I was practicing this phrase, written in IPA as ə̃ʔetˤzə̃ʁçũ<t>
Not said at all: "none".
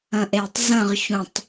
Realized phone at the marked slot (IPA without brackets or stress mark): tˤ